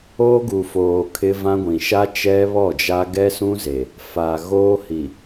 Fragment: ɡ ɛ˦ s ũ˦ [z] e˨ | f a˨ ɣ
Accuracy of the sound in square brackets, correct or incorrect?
correct